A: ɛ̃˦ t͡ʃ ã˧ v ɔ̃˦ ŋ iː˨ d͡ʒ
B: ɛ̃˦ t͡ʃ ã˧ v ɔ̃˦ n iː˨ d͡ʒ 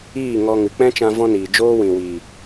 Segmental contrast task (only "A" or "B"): B